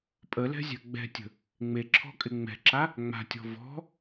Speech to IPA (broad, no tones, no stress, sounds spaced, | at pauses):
pʼ ə l ɛ̤ zʲ a̤ ɡ͡b ɛ̤ tʲ ə̤ | ŋ͡m e ǁʰ ɔ̤ kʼ ɪ ŋ͡m ɛ̤ ǁ a | ŋ͡m a̤ tʲ ɔ̤ v ɔ̤